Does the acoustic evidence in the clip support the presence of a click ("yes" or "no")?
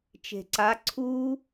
yes